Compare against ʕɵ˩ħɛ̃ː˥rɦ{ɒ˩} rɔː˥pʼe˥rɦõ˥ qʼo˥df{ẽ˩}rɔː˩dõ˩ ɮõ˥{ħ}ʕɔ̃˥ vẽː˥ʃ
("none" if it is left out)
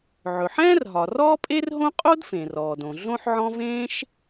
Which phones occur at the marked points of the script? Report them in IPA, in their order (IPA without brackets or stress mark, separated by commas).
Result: ɒ˩, ẽ˩, ħ